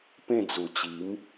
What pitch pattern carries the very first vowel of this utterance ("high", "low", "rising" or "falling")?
falling